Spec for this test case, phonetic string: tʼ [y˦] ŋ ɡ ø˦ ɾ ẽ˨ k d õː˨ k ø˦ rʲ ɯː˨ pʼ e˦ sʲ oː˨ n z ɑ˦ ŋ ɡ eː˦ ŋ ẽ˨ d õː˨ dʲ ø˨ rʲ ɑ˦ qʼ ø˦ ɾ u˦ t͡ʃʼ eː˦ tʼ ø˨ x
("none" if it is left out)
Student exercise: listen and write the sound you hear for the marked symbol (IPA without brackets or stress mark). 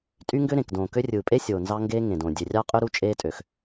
y˦